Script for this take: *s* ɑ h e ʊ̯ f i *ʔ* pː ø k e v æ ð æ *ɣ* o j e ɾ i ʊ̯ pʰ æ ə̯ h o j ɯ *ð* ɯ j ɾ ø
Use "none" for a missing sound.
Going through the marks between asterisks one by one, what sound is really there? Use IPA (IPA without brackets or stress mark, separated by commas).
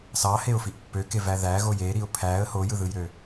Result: s, ʔ, ɣ, ð